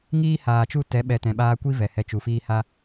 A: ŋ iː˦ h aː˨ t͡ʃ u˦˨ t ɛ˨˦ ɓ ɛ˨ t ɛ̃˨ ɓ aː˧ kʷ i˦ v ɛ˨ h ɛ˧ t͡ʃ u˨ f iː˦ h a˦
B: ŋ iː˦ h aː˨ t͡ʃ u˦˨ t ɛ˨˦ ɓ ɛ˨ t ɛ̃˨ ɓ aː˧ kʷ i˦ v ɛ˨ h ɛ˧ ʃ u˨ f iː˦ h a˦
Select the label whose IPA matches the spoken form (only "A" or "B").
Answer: A